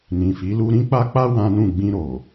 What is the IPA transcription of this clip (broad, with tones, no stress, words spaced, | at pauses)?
nĩ˨fi˨˦ lu˧ɾĩ˦k͡pa˦k͡pa˦ wã˦nũ˦˨ ɡ͡bĩ˧ ɾo˨